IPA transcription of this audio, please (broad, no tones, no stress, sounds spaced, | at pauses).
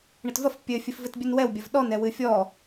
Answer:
ɳ ɘ t v ɐ f pʲ ɘ fʲ ɘ f v ɘ t bʲ ɨ n w ɛ w bʲ ɐ v ɗ ɔ n ɛ w ɨ fʲ ɔ